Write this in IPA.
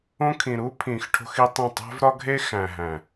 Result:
õ˦ kʰĩ˨ ɾu˦pʰĩ˨x ʈʰo̤˦xi˦tˤĩ˦˨ tˤæ̤˦vɾɒ˦ɡʱe˦ xæ̃˨ɦæ̃˨

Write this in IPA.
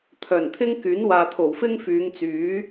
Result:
t̪ʰœː˨˩nt̪ʰɪ˥ŋ kyː˨˥nwaː˨t̪ʰo˨˩w fɪ˥ŋfyː˨˧ŋt͡syː˨˥

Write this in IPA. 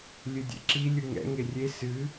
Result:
lʲɨdʲɛ̰ǁi lʲɯŋɛ̰ ŋerʲe sɨ

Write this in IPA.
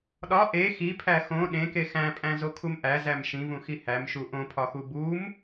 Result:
ɗɒ ʔe xipʰæ xõ ɗẽke xæ̃pʼæ̃zokʰum ʔæzæm ʃĩvũxi hæmʃu ʔõpʰɒxu bum

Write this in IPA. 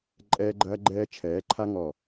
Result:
ǃʼɛː˦ɡ͡ǃɐː˦ ɡ͡ǃɛː˦ t͡ʃʰɛː˨˦ǃʰa˦ ŋɔ˧˩

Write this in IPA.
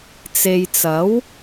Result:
t͡se˨jt͡sɐ˨˥w

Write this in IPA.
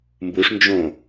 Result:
mbuʂnd͡ʒõ

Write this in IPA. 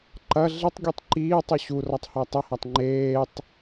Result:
ǃɐ ɮɪtˤɡʲutˤ ǃiːtˤu ɕurɒtˤhɒ tˤɐhatˤ ŋ͡ǃeːtˤ

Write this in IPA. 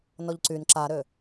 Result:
nɔʎǀyn ǁaɾø

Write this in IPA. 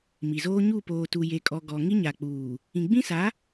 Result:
mi˨zoː˦ ɲu˦˨poː˨ tu˨je˨kʼɔ˨ ɡɔ˨ŋi˦ ɲa˨k͡puː˨ | ĩ˨ɡ͡bĩ˦sa˨˦

